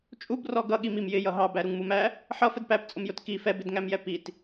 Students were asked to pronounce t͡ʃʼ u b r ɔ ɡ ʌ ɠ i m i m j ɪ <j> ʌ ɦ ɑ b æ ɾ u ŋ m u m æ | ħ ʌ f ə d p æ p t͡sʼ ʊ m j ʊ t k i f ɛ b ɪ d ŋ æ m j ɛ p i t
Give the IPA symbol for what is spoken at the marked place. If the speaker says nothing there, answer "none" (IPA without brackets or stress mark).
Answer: j